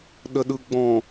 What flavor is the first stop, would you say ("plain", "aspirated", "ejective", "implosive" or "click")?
implosive